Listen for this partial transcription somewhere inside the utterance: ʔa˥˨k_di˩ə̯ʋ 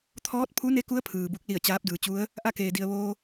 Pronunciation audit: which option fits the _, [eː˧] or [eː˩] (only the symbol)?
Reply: eː˩